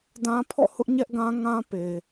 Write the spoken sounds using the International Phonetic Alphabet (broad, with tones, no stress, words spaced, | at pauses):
dã˦ pʰɔ̰˦˨hʊ˦ʔ ɲɛ˦ʔɡã˦ ŋã˦pe˨